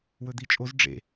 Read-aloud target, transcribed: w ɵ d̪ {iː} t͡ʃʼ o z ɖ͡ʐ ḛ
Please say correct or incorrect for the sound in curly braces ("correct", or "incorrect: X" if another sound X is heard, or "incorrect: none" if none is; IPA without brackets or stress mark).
incorrect: i